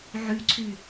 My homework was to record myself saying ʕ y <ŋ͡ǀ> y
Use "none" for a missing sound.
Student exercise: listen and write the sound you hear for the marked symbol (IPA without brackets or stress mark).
ǀʰ